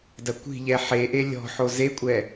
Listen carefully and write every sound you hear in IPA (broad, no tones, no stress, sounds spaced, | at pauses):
d ɐ kʷ i̤ ʎ ɛ ħ e ʔ e lʲ ɔ̤ ħ o z e kʷʼ ɛ